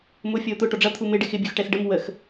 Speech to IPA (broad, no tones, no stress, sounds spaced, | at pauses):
m ʊ fʲ ɔ o̯ t̪ ʊ ʈ ɔ ɖ͡ʐ ʌ t̪ʰ u m ɪ ɖ ɪ x ɪ bʲ u x ʈ ɛ s ɖ ə m w ə x